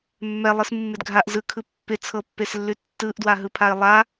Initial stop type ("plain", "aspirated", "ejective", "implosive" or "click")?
plain